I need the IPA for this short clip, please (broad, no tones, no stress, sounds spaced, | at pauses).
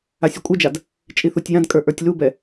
a sʲ ʉ kʷʼ ɨ d͡ʒ a d | t͡ʃʼ i θ u tʲ j ã d kʼ ə˞ ʔ ə˞ tʲ l u b ɛ